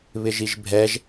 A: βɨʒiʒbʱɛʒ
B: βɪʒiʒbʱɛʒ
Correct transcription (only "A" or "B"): B